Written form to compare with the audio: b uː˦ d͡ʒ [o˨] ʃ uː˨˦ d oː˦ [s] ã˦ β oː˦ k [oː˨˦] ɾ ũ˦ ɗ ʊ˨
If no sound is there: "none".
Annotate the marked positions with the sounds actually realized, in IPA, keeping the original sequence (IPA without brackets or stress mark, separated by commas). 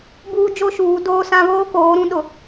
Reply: o˦, s, oː˨˦